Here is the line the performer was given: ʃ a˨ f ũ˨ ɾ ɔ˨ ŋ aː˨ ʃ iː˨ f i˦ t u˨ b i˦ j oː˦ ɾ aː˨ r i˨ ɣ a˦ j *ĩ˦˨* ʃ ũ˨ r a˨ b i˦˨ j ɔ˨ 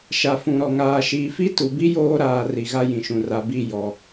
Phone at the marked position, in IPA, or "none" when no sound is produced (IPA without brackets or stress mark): ĩ˨